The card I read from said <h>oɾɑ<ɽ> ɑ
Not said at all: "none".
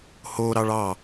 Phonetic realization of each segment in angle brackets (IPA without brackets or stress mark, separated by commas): h, ɭ